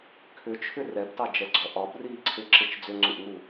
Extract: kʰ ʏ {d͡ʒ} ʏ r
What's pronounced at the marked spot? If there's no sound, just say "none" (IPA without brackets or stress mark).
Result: t͡ʃʰ